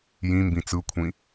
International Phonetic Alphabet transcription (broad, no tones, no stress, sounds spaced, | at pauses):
j ĩ m b ĩ t͡s ɯ kʷʰ ĩ